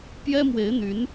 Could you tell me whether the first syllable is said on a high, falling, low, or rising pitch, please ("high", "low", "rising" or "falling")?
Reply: high